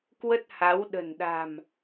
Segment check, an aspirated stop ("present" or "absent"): absent